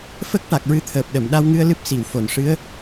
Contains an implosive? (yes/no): yes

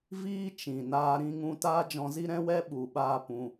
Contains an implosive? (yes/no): yes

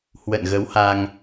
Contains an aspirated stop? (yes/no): no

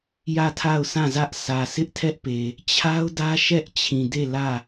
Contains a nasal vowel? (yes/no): yes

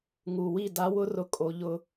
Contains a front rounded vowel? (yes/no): no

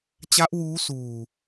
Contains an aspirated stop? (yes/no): no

